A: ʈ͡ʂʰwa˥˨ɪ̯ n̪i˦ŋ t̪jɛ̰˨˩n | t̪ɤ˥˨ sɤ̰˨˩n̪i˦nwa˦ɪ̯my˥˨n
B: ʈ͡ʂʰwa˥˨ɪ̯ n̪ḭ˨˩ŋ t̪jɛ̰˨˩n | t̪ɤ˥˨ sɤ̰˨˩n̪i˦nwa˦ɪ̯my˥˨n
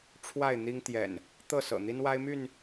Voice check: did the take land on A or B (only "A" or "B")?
A